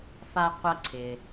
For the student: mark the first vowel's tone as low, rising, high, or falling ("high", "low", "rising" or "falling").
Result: high